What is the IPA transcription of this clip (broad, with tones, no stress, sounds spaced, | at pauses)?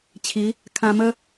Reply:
t͡ɕʰ i˨˦ | kʰ ã˧ m ə˦